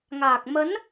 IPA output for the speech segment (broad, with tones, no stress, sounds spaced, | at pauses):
ŋ aː˨˩ k̚ m ə˨˦ n